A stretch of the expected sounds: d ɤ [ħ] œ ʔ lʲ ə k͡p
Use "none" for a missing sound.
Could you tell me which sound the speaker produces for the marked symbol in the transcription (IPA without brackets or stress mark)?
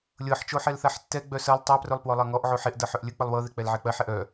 ħ